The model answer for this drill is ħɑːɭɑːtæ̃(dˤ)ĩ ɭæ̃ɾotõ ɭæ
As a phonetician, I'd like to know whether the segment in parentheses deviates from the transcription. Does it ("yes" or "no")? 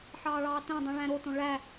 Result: no